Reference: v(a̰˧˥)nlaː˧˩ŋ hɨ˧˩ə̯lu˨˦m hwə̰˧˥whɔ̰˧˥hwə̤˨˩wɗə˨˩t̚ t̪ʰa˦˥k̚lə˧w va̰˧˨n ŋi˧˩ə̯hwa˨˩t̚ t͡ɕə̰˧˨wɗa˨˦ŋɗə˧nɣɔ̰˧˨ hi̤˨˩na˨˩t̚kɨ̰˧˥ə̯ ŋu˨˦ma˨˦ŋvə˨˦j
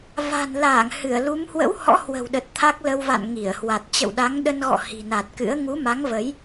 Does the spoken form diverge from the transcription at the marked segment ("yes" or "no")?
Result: yes